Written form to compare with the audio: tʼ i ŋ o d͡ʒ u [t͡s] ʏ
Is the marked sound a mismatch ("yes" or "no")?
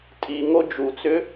no